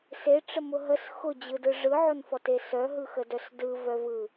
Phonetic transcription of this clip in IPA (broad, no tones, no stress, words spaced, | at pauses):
seʈ͡ʂəmʊ ɦəs xʊd͡ʑɯdɯ ʐɯʕʊnfɔte sœɦɯxədœs dɯvœvɯ